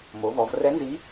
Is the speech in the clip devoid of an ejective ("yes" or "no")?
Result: yes